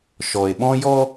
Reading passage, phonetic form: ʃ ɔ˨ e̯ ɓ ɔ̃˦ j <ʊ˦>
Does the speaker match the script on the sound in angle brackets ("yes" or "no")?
no